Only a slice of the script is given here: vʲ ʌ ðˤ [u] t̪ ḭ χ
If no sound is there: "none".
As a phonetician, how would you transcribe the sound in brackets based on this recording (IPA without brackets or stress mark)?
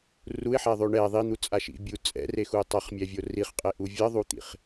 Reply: u